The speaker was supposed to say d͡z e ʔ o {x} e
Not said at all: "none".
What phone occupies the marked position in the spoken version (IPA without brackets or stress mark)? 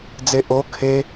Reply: kʰ